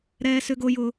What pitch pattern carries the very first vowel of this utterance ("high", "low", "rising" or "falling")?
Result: high